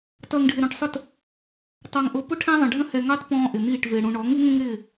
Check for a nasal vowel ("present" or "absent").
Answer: present